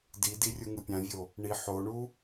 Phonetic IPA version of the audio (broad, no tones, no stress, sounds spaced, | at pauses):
d i d i rʲ u ŋ ɯ pʲ ã vʲ o | ɳ i ħ o ɳ u